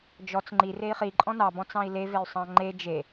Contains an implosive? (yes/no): no